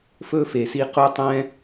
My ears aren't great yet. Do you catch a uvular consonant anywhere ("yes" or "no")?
yes